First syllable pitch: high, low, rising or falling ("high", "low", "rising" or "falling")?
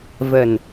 low